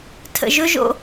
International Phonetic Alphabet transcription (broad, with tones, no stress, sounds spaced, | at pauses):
tʰ ə̰˨ ʒ ɵ˦ ʒ o̰˦